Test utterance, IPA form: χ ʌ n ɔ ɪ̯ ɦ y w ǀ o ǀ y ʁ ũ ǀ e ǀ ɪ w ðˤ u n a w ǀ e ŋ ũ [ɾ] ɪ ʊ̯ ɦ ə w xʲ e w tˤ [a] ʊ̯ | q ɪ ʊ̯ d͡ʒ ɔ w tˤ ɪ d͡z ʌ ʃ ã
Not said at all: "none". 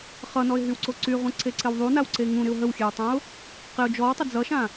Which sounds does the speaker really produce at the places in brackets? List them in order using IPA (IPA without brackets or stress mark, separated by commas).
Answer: ɾ, ã